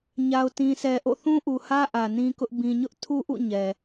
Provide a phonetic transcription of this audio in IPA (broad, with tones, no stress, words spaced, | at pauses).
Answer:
ɲa˨ʊ̯tĩ˨sɛ˨ʔo̰˦˨ θũ˦ʔu˨hä˦ ʔä˨nĩ˦kʊ˦ʔ bĩ˨ɲʊ˦ʔtʰu˦ʔṵ˦˨ ɲɛ˨